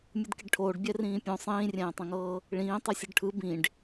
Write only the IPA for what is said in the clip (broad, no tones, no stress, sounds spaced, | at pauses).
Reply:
mʲ ɯ d k i ɖ ʈʰ oː ɖ bʲ ɛ r ĩː pʲ õ sˤ ĩː rʲ ɛ̃ː tˤ ẽ ŋ ɤː | ɭ ĩː tˤ ɯ sʲ ɯ ɖ ʈʰ ɯ b ĩ ɖ